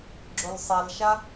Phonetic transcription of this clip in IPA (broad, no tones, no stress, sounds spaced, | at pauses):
ɡ͡ǁ o l sˤ a l ʃ a